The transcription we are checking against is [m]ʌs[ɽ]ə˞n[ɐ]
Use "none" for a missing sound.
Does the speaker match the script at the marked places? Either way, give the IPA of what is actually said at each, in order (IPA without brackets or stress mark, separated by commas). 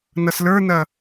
n, l, ɐ